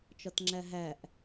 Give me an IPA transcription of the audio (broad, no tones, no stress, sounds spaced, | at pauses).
t͡ʃ ɒ t ŋ͡ǁ æ ɦ æ ʔ